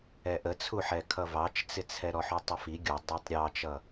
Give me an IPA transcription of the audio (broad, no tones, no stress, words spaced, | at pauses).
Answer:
ɛʔət͡sʰuħɛ kʰʌvɑt͡ʃt͡sɪt͡sʰɛ ɾɔħutˤʊfi ɡʲu dˤɑtˤɾʲɑt͡ʃʌ